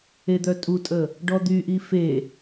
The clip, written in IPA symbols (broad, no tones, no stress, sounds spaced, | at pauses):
e d̪ œ tʼ u tʼ ə | ɖ ɔ d̪ y ʔ i f e